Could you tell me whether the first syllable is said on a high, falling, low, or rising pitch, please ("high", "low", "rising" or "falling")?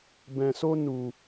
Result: low